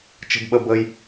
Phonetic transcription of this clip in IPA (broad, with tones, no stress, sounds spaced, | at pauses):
t͡ʃ ə̤˧ b ɓ ə˧ b əː˧ j